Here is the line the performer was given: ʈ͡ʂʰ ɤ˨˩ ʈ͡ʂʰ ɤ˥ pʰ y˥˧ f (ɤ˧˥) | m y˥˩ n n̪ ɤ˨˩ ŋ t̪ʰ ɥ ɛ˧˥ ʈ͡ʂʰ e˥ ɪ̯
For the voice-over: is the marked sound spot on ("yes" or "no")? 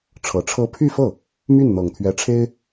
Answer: no